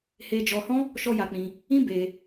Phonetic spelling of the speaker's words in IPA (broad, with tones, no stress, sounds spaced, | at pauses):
h e˧ d͡ʒ ɔ˧ h ɔ̃˦ | ʃ ɔ˦ j a˧ k͡p ĩ˧ | ĩ˦ b e˧